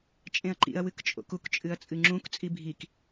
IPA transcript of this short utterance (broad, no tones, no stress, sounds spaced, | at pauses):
t͡ʃʼ ẽ ɐ̯ ǃ ḭ ɐ̯ w ɨ k t͡ʃʼ o̰ k u k t͡ʃʼ ɨ ɐ̯ t͡sʼ ɨ ŋ͡ǁ ũ k t͡sʼ i bʱ i k